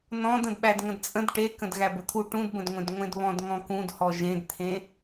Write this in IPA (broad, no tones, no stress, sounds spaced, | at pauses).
n ɔ̃ d ə̃ d ɓ æ d ŋ ə̃ d t͡sʼ ə̃ d ʈ e k ə̃ d ɣ æ b ə t̪ʰ u ʈ ũ d b ə̃ d ŋʷ ẽ d ŋʷ ẽ d β ɔ̃ d ŋ ɔ̃ k ũ d h ɔ ʒ ẽ d t̪ʰ ẽ